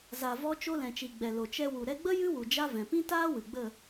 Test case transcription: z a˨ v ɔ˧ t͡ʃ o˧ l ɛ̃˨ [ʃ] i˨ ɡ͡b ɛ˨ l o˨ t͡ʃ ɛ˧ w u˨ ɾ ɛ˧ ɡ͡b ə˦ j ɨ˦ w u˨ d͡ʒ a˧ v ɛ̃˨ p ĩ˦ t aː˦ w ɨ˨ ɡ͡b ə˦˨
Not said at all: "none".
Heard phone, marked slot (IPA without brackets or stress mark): t͡ʃ